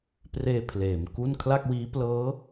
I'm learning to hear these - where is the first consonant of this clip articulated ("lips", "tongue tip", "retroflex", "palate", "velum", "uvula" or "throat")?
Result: lips